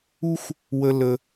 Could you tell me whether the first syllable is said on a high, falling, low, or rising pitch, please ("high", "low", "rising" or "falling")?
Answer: high